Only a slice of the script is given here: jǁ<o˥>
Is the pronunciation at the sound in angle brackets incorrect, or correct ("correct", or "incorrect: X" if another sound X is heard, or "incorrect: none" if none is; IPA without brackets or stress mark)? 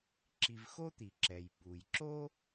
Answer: correct